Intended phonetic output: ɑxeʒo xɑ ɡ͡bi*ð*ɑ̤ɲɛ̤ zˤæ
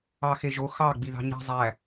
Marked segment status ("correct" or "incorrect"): correct